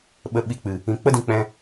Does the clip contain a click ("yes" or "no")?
no